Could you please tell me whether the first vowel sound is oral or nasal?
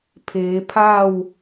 oral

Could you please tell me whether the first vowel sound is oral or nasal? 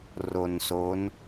oral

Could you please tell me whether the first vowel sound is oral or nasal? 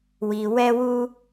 oral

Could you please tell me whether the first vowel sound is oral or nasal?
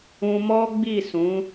nasal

